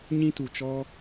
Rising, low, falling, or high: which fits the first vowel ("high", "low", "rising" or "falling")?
high